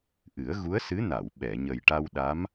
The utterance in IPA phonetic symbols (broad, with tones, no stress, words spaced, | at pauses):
ʔɨ˨˩˦ə̯ɣu˧˥ə̯sɨ˧˥na˨˩˨w ɓɛ˨˩˨ɲə˨˩jʈa˧wɗa˧˥m